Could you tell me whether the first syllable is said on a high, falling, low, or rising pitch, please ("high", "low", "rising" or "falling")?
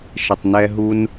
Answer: low